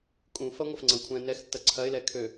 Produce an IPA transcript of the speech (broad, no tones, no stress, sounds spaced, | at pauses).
kʼ ũ f ɐ ŋʷ ɐ f ŋ͡ǀ ɐ̃ kʷʰ ɛ̃ n ɛ x tː ɐ ǀʰ ɐ ɪ̯ l ɛ kʰ ø